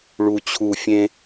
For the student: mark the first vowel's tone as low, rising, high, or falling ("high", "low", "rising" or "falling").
low